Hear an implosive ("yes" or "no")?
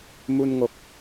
no